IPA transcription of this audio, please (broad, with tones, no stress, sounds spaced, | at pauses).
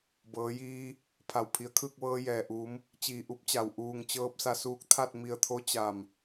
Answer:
b ɤː˩˧ j iː˧ | pʰ a˩ w pʰ i˩˧ ə̯ kʰ ɯː˥˨ k̚ ʋ ɤː˧ j ɛː˩ ʔ uː˩˧ m | t͡ɕ iː˧˩ ʔ u˧˥ p̚ t͡ɕ a˩ w ʔ uː˧˩ ŋ t͡ɕ ɤː˧ p̚ s a˧ s uː˧ k̚ t̪ʰ a˥˨ t̚ m i˧˩ ə̯ t̪ʰ o˧˥ t͡ɕ a˧˩ m